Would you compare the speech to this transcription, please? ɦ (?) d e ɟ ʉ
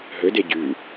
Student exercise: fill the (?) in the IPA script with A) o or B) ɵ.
B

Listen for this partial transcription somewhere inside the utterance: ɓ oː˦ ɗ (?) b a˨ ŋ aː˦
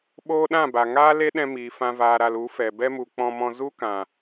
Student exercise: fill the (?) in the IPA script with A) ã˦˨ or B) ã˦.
A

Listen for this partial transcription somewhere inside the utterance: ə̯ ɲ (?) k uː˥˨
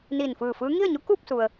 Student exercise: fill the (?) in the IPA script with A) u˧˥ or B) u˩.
A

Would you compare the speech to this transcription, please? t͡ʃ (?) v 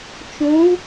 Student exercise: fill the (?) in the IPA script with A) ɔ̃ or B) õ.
B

